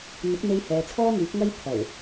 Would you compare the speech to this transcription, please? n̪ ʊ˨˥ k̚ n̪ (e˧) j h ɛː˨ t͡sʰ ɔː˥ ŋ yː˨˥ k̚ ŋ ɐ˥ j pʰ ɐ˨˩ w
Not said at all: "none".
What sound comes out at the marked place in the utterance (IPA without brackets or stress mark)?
e˧